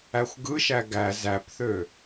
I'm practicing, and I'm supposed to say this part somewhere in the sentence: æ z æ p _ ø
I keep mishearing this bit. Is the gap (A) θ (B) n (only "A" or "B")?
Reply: A